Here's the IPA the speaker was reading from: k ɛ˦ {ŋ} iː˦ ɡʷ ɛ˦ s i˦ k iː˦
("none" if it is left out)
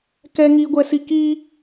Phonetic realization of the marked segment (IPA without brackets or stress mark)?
ŋ